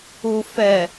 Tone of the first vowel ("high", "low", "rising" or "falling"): low